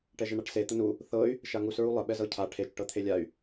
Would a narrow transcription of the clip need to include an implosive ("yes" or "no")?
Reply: yes